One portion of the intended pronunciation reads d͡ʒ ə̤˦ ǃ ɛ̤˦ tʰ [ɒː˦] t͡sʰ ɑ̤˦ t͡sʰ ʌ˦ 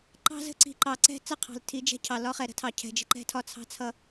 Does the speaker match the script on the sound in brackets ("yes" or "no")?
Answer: no